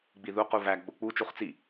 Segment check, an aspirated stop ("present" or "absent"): absent